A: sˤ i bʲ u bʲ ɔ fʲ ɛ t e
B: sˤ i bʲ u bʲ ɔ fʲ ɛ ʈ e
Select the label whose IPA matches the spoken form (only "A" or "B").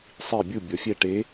B